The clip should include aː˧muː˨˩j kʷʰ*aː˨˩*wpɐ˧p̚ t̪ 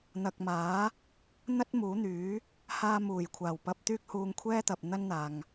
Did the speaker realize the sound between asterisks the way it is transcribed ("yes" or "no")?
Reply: yes